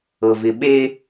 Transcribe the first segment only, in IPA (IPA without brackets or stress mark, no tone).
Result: ɤ